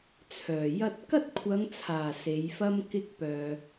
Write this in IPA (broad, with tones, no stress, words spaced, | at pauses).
t͡sʰœː˨˩jɐ˥t̚ kɐ˥t̚kʷʰɐ˨˧ŋt͡sʰaː˨˩ se˨˧jfɐ˥m kɪ˥k̚ pœː˨